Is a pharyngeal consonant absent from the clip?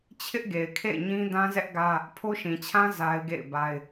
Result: yes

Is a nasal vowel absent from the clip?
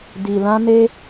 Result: no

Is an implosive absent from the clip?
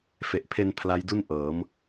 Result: yes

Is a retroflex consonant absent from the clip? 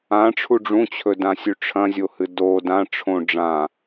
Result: no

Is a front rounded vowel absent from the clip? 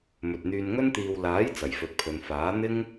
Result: no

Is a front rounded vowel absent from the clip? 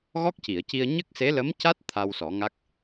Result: yes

